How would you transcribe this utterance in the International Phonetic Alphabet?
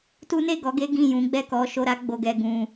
t u˦ n e˦˨ ɡ ɔ˨˦ ɡ e˦ ɡ ĩ˦˨ j ũ˨˦ ɡ͡b ɛ˦˨ k ɔ˨˦ ʃ o˧ ɾ a˦ ɡ͡b o˧ ɡ ɛ˧ ɡ ũ˧

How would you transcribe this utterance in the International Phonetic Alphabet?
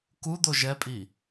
k u d̪ o ʒ ɛ pʼ i

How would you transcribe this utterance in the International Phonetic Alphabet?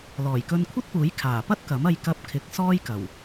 l ɔː˨˩ j k ɵ˧ n kʷʰ ɐ˥ t̚ p uː˨˥ j kʰ aː˨˩ p ɐ˥ t̚ k ɐ˨˥ m ɐ˧ j k ɐ˧ p̚ kʰ ɪ˨˥ k̚ s ɔː˥ j k ɐ˨˩ w

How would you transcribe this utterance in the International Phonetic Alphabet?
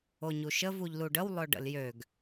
o ɲ u ʃ ə v u ʎ l u ɖ ə w lˠ ɵ ɖ ə̰ l j ø ɡ

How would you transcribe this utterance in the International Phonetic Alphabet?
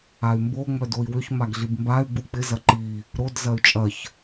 a y̯ m b o ŋ͡m œ d o i̯ w ʏ ç m a ɡ ɮ i b m b a y̯ ɡ͡b u k͡p ɪ z ɐ ǃ i | ɾ o d z ɐ y̯ t͡ʃʼ ɐ ç

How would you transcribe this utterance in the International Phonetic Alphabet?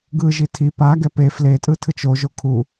ɡ ɯ ʒ i tʰ i p a ɡ ɛ p e f l e tʼ ɯ tʰ ɯ t͡ʃ o ʒ o kʰ u

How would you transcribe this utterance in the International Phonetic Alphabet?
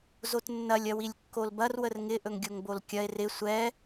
z o t nː ɐ lʲ ɐ w i lʲ kː o l b ɐ r w ə r ŋ ɪ ʔ ɵ ŋ ɡʲ o ŋ b o l kʲ ɐ e̯ r ɪ sʷ ɛ

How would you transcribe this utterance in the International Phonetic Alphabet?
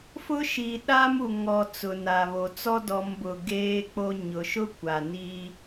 f ʊ˦ ʃ i˨ ɗ a˦ m u˨ ŋ ɔ˨ t͡s ʊ˨ n a˨ β o˨ t͡s ɔ˦ d ɔ˨˦ m b ʊ˨ ɡ eː˦ k͡p o˦ ɲ ʊ˨ ʃ ʊ˦ kʷ a˨ n i˦

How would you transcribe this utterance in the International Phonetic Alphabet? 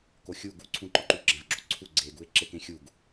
k o xʲ u ɡ u ǀʰ ũ ǃ ɒ ǃ u ɡ͡ǁ æ̃ v ɡ͡ǁ o ǀʰ u ɡ͡ǀ e ɡ u e̯ ǁ e k ẽ xʲ u ɡ

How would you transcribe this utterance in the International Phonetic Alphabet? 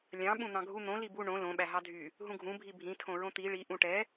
lʲ ɑ̃ ɓ ũ n̪ ɑ̃ ɡʱ u n̪ õ l i b u ɳ õ l õ ɓ æ ɦ ɑ dʱ y | ɦ ũ ɡʱ ũ bʱ i bʱ ĩ tʰ õ ɹ õ t̪ i ɭ i ʔ ũ ʈ ɛ

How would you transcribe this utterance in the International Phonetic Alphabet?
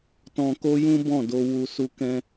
t ɔ̃˧ k o˦ j ũ˦ b ɔ̃˦˨ d o˧ w u˧ s u˧ k ɛ̃˧

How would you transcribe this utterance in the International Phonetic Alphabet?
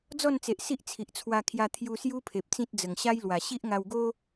d͡z ɔ˥˧ n t͡s e˨ ʔ s i˦ ʔ t͡sʰ i˨ ʔ t͡sʰ w a˧ kʰ j a˧ t̪ʰ j u˧ s j u˦ pʰ e˨ p̚ t͡s ĩ˦ t̚ d͡z ə˨˩ ŋ ɕ a˦ j l w a˨˩ ɕ i˦ ʔ ŋ a˧ w ɡ o˦

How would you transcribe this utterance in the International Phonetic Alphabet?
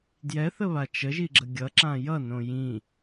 d j ɛ θ ə β a t͡ʃ ə ʒ i ɡ͡ǁ ə ɡʲ ʌ ǁ ã j ʌ n õ j ĩ

